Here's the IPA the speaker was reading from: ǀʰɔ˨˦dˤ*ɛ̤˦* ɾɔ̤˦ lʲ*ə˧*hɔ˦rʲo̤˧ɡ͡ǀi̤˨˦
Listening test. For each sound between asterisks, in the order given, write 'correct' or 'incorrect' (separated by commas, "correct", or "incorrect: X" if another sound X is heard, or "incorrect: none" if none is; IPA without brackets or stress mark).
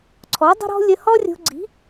incorrect: ə̤˦, correct